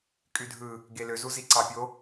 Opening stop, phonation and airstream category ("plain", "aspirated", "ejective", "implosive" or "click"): ejective